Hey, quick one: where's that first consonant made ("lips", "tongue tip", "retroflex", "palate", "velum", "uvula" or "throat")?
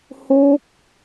throat